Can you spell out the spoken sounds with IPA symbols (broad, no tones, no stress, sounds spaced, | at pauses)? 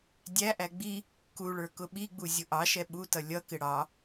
dʲ æ ʔ æ ɡ͡b i | k u ɭ ə˞ k ʊ ɓ i ɡ͡b u zʲ ʊ ʔ ɑ ʃ ɛ ɓ u t ʌ lʲ ʌ k ɪ ɽ ɑ